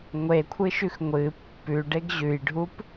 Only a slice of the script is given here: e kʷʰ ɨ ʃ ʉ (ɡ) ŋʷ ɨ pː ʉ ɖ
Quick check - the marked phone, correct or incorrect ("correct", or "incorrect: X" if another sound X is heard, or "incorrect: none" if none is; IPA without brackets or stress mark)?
incorrect: x